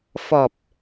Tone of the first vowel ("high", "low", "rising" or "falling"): low